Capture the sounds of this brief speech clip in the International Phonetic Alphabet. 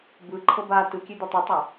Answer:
bɯ ǃʰɤba tɯkʲe d̪otˤitˤa

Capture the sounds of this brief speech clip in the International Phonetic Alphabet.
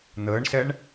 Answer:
n̪əːɳsɛɳ

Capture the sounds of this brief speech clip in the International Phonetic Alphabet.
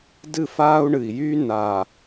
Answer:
dɨ˦˨faː˦u̯ɳɨ˨i̯jyː˦ naː˨

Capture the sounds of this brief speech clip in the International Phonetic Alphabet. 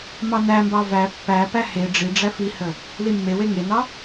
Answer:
mɑnæmbɑ væ pːæpæ he ɖ͡ʐi ɖ͡ʐæfihə | limːewe ŋenɑ

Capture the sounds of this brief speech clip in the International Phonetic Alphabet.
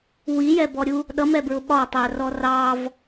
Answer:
wijɛbɔɾʲu | ɗʌmɛbɹʊ ɓɒtˤærɔ rɑv

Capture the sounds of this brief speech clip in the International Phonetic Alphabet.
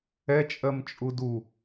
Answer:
ɛ t͡ʃʼɜmt͡ʃʼudu

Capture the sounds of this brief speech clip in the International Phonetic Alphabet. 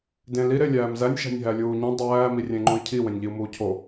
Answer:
dẽ li ɾelʲæːmzænʲ ʃæ̤nʲɦælʲuːɲĩ dˤæː mirʲẽŋ͡ǃũi̯cʰi wẽnʲʎiu̯muːcʰo

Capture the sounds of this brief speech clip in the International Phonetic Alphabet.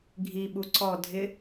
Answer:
ɡʱiɓu ǀɔ dʱɪ

